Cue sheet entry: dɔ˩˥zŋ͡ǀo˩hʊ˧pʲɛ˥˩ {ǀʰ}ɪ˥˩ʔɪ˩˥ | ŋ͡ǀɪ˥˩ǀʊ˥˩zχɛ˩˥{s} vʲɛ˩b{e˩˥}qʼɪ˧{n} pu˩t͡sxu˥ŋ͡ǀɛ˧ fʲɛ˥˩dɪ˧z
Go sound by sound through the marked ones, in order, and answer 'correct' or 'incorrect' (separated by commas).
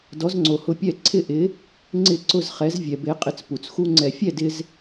correct, incorrect, correct, incorrect